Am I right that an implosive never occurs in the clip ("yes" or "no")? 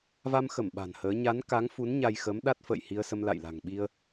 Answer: no